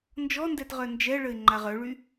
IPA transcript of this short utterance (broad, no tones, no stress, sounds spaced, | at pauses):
n d͡ʒ ɔ n d ɛ t ʁ œ n d͡ʒ ɛ ɭ ə ɪ̯ ŋ͡ǃ a ʁ œ ɭ y